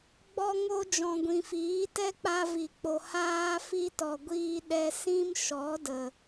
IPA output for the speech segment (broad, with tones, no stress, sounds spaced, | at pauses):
ɡ͡b ɔ˧ ŋ o˧ d͡ʒ ɔ̃˨ ɡʷ ĩ˨ f iː˨˦ t ɛ˦ k͡p a˧ v i˨ k͡p o˨ h aː˦ f i˦ t ɔ˨ ɡʷ iː˦ ɗ ɛ˧ s ĩ˦ m ʃ ɔ˨˦ d ə˨